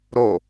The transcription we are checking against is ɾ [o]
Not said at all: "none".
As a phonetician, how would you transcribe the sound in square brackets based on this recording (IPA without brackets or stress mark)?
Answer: o